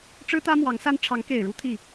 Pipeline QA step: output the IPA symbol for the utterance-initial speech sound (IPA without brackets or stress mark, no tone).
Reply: ʈ͡ʂ